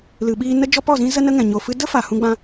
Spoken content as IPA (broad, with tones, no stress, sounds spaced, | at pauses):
l ɨ˨ ɓ iː˧ n ə˦ d͡ʒ ɔ˦ p ɔ˦˨ z ĩ˦ z ə˦ n ə˦ ŋ ɛ̃˨ ɲ o˨ f ɨ˧ d ə˦ f a˨ h ũ˧ ɡ͡b ã˧